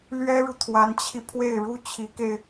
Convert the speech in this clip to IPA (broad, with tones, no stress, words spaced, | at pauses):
lɥɛ˥ɻu˨ t̪ʰwa˧˥nt͡ɕʰi˧ pʰwe˥˩ɪ̯ɻu˥ t͡ɕʰi˧˥ke˧ɪ̯